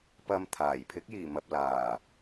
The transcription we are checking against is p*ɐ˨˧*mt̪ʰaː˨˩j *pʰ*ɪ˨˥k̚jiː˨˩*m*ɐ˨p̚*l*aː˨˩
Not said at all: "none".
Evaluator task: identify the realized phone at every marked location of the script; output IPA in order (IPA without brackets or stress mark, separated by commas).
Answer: ɐ˧, pʰ, m, l